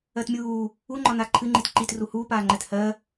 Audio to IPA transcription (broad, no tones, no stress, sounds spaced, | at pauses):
ɜ t mʲ uː | u ŋ͡ǃ ɒ n a ǃʰ ɨ ŋ͡ǃ i t ǃ i t r u h uː p aː ŋ͡ǃ ɛ t h ɜ